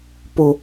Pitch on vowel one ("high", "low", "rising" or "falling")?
low